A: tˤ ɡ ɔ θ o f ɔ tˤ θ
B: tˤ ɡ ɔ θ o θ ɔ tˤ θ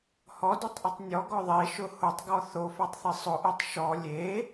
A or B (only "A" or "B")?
A